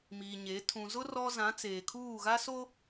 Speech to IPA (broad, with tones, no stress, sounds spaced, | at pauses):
m iː˨ ɲ e˨˦ tʰ ũ˨ z ʊ˦ r ɔ˦ z ã˨˦ t͡s eː˨ kʰ uː˦˨ ɣ a˦ s o˦